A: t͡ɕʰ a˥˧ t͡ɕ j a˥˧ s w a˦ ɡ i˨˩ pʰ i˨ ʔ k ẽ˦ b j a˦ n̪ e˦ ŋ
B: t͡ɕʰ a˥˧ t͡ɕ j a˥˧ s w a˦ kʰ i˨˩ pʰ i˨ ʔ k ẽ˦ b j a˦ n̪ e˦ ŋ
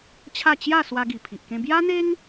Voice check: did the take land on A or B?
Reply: A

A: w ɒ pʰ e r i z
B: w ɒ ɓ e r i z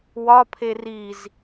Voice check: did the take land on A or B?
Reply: A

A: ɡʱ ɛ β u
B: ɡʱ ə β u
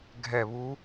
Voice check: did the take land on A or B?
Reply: A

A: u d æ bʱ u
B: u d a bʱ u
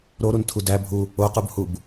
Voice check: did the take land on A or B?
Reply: A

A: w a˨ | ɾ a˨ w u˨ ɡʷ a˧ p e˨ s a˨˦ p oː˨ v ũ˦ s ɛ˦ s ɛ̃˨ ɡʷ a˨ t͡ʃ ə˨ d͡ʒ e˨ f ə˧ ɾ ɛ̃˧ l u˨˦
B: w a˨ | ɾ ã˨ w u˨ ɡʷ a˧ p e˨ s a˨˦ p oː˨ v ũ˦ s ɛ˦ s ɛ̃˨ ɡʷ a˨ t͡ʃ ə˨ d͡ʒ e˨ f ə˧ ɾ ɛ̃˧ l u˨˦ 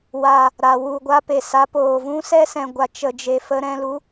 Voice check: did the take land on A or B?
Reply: A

